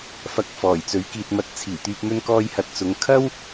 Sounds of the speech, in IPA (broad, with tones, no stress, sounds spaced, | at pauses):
f ɐ˨ k̚ f ɔː˨˩ j t͡s ɵ˨˥ ɥ k iː˨ t̚ m ɐ˧ t̚ t͡sʰ iː˨˩ t̪ yː˨ p̚ m ɵ˧ n k ɔː˧ j h ɐ˨˥ t̚ t͡s ʊ˨˧ ŋ kʰ ɐ˥ w